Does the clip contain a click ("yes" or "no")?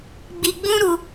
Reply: no